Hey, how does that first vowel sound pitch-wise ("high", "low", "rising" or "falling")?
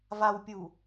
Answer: low